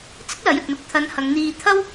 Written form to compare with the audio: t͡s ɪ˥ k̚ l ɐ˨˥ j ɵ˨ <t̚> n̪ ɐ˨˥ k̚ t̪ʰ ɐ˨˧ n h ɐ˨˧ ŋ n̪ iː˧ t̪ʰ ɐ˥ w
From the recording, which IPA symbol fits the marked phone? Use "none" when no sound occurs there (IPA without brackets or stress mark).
t̚